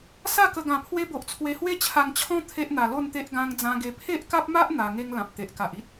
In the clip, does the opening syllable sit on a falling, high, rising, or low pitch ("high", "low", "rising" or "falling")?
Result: falling